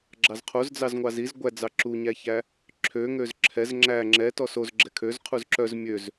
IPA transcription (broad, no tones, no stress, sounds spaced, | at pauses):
ɡ͡ǁ ɑ z qʰ o z d͡z ɑ z ŋʷ ɑ z i z ɡʷ æ d͡z ɑ ǁ u ɲ æ ç æ | ǁʰ ø ŋ ø z ǁʰ ɛ z ŋ͡ǁ æ ŋ͡ǁ ɛ t ɔ s o z ɡ͡ǁ ɛ kʰ ø z qʰ u z ǁ œ z mʲ ø z